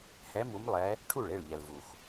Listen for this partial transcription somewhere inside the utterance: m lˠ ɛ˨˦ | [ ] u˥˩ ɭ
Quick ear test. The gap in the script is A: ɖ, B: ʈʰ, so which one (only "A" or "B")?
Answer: B